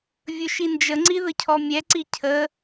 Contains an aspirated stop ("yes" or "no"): yes